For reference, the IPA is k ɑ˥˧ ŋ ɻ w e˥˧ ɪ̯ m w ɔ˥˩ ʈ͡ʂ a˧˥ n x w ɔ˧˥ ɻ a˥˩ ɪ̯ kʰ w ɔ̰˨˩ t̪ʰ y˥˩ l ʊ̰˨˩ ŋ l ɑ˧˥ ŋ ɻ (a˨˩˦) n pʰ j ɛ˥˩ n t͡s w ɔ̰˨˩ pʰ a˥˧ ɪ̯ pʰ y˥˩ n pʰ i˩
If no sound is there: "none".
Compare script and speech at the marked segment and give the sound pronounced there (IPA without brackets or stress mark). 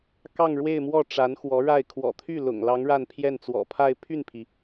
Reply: a˥˧